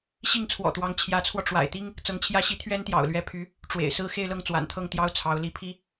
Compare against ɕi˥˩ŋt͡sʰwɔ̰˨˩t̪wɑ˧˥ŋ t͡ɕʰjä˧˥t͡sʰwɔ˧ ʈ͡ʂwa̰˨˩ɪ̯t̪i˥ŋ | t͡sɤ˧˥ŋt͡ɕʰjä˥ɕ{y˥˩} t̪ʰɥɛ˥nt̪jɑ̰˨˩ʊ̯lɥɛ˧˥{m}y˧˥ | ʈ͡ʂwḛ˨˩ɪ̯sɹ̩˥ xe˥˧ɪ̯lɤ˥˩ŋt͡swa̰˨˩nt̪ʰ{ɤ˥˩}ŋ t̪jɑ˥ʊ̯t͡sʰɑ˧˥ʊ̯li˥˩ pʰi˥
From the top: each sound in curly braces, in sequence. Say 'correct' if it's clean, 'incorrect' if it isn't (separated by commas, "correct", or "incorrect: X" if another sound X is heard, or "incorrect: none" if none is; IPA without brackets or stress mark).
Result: incorrect: i˥˩, incorrect: pʰ, correct